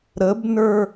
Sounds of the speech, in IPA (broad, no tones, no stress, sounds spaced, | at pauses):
ɾ ə b n ə˞